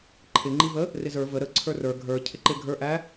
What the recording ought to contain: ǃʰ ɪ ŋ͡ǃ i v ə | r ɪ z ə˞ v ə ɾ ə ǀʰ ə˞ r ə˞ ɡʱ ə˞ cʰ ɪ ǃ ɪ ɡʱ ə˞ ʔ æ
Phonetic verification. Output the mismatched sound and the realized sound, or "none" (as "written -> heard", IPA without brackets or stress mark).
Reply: none